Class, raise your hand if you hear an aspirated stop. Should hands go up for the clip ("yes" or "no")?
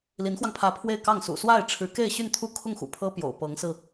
yes